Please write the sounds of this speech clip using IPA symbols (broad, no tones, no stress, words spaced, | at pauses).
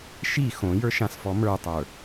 ʃi xõjə˞ʃãsfɔ mə˞tˤə˞